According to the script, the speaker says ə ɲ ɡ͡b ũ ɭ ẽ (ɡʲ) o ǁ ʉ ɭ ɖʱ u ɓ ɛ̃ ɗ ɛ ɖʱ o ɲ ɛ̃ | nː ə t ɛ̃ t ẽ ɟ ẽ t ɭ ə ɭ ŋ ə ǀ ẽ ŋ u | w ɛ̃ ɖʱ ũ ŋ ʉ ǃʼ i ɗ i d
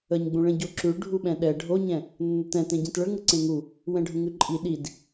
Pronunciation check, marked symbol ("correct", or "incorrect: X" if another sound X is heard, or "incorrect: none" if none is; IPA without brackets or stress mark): incorrect: ɟ